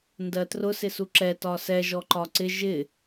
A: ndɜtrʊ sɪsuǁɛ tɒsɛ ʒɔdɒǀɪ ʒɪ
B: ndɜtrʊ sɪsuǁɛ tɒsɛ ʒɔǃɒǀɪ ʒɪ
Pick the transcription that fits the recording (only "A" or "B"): B